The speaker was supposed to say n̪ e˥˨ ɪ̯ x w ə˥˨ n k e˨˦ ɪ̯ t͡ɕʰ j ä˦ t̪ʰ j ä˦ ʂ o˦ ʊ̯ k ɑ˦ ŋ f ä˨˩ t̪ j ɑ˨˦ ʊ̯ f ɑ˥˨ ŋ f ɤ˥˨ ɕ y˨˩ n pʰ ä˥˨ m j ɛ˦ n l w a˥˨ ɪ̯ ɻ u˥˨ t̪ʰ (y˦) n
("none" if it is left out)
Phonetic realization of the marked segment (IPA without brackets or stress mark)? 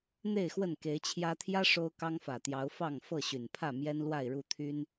y˦